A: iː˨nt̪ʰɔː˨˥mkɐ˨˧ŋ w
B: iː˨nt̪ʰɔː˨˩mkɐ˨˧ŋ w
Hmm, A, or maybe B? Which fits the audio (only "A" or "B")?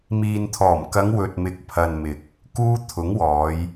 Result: B